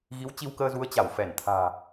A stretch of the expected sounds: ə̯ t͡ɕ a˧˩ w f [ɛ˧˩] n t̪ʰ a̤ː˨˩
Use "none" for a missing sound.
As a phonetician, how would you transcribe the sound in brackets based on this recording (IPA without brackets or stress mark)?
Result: ɛ˧˩